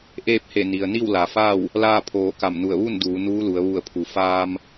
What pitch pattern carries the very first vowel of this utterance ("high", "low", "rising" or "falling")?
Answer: falling